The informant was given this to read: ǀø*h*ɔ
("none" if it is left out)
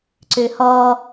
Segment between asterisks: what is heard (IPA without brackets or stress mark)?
h